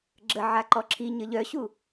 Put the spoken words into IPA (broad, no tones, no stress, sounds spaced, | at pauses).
ɡ͡ǁ ə ʕ a ǃ ɔ ǁʰ i ɲ ə ʎ œ ɕ u